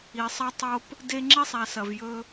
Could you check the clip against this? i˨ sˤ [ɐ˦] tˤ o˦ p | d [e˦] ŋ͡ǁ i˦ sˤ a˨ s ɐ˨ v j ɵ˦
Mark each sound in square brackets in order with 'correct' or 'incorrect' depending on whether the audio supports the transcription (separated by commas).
correct, correct